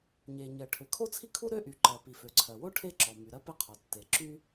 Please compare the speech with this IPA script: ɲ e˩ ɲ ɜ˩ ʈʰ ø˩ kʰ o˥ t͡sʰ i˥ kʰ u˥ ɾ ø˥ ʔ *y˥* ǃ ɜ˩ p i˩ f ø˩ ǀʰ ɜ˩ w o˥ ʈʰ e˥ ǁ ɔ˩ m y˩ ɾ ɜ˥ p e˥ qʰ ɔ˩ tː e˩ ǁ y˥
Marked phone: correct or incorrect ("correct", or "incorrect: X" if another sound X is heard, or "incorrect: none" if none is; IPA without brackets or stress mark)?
incorrect: y˩